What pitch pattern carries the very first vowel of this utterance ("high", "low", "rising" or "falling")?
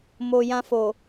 low